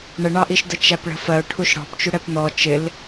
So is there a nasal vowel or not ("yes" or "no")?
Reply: no